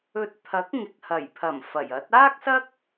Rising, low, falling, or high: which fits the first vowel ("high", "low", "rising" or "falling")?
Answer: rising